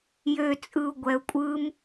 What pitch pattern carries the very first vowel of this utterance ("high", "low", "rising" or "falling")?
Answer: low